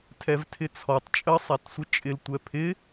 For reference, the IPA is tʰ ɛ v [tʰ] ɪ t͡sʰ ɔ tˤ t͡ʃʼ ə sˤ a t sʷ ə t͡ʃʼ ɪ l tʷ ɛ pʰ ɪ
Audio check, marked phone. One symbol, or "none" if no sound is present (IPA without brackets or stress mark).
tʰ